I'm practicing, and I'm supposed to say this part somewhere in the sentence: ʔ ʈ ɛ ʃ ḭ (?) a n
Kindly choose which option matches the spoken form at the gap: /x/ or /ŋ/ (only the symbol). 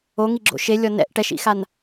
x